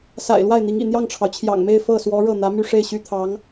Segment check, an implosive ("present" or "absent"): absent